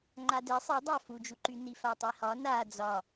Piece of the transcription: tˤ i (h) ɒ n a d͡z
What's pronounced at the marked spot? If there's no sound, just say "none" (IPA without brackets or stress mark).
h